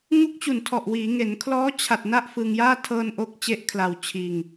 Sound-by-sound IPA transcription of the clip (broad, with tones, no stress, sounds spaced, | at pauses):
ŋ u˦˥ k̚ t͡ɕ u˨˩ n tʰ ɔ˨˩ ʔ w iː˩˦ ŋ e˩˦ n kʰ l ɔː˦˥ t͡ɕʰ a˨˩ t̚ n a˥˩ ʔ f ɯ˧ ŋ j aː˥˩ tʰ ɤː˧ n ʔ o˦˥ k̚ t͡ɕ e˦˥ ʔ kʰ l a˧ w t͡ɕʰ iː˧ ŋ